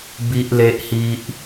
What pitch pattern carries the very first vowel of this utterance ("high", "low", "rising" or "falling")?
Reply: high